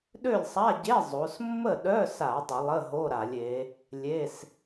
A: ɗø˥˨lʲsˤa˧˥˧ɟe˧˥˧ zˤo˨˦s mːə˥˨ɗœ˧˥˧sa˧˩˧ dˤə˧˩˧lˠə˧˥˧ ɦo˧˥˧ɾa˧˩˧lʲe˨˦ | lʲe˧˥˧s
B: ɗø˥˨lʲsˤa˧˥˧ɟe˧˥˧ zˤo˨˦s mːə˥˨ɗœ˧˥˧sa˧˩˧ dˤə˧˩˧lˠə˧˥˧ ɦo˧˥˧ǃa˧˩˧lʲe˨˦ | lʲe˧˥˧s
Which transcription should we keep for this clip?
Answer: A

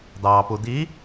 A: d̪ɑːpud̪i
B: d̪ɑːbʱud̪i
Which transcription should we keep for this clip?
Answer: A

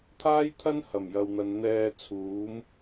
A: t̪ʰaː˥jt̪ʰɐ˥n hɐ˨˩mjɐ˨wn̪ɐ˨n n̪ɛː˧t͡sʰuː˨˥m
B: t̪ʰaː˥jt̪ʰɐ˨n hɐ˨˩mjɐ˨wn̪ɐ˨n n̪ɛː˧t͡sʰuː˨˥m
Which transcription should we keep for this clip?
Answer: A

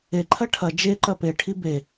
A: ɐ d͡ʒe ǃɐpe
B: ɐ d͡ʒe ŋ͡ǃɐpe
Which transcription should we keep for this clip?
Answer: A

